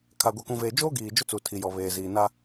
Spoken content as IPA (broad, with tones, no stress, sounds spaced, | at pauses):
kʰ a˨ ɡʷ ɛ˨ k ũ˨ v eː˨ d͡ʒ oː˦ ɡ iː˨ d͡ʒ ʊ˦ t͡s u˨ tʰ i˨ j ɔ˨ β eː˨ z iː˨ n a˦